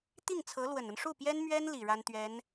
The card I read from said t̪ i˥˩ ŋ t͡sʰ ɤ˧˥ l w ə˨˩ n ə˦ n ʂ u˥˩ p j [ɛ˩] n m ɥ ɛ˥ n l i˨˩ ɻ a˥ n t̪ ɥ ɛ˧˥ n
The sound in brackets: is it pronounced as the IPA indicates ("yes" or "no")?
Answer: no